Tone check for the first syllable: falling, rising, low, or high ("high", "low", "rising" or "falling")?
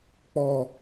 high